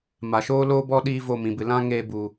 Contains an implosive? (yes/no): yes